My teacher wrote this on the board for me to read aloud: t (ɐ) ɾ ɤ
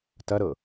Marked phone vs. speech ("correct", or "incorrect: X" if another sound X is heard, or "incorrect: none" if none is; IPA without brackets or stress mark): correct